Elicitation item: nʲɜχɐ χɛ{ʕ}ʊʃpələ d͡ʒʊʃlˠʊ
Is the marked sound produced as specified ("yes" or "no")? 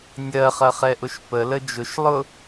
no